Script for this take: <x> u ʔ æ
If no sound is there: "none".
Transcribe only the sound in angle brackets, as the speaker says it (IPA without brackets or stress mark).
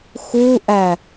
x